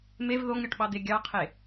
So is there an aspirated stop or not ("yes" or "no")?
yes